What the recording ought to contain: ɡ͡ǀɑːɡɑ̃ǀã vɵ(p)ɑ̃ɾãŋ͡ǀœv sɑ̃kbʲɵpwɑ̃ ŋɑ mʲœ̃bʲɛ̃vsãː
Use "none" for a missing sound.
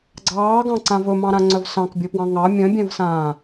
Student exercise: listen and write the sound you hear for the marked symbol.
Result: m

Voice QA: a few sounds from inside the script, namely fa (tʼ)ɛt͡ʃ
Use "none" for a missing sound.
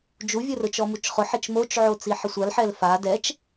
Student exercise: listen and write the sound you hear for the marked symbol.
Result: d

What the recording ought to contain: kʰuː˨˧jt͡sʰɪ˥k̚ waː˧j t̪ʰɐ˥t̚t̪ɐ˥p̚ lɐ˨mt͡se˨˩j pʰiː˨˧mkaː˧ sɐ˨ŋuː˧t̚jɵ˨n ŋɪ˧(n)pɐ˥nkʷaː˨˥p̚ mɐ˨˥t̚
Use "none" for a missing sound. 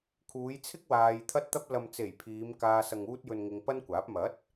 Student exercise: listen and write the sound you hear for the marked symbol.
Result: ŋ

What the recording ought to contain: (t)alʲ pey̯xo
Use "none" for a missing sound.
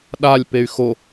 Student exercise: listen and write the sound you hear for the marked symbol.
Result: ɗ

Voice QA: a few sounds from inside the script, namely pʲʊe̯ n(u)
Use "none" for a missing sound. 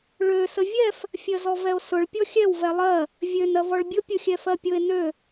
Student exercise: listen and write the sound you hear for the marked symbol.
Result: ø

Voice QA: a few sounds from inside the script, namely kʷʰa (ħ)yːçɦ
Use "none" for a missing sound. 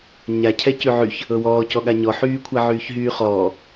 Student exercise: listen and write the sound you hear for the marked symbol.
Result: ʕ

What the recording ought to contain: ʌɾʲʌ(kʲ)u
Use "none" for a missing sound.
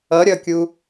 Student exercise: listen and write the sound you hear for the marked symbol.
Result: kʲ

